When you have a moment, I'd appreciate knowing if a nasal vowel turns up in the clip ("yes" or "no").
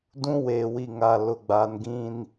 yes